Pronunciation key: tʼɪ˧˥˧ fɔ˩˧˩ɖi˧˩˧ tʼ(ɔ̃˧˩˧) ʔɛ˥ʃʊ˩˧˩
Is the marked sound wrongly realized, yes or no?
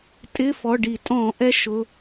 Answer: no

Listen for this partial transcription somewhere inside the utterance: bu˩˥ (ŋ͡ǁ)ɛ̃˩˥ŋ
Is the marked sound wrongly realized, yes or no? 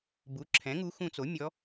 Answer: yes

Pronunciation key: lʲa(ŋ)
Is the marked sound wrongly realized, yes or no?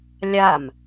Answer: yes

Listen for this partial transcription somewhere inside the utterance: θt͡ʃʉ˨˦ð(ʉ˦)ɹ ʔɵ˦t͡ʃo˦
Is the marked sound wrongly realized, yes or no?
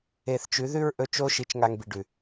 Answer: no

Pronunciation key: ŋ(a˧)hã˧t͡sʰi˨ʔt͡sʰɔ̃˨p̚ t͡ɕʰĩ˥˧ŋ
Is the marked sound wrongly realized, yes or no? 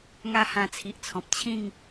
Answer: yes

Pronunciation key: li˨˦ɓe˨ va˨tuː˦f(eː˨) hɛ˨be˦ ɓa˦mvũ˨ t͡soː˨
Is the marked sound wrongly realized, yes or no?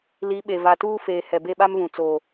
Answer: no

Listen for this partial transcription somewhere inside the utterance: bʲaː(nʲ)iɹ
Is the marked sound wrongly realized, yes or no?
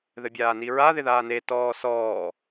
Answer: yes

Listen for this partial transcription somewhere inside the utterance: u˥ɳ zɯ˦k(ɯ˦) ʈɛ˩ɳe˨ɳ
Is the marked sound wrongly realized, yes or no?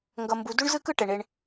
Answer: no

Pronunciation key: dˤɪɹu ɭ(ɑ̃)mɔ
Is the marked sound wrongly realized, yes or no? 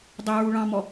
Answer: no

